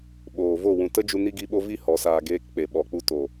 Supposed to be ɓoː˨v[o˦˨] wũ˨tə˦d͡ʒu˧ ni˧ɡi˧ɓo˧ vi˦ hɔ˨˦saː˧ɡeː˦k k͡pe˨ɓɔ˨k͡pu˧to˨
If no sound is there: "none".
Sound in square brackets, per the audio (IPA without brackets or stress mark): o˦˨